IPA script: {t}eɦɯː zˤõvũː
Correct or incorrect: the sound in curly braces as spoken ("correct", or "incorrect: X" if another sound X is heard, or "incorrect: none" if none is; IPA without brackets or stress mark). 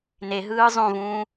incorrect: n